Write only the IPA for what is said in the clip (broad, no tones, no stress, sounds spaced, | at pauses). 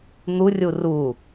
n̪ u rʲ u r u